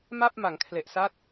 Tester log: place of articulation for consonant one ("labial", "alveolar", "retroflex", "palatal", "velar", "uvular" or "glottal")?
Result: labial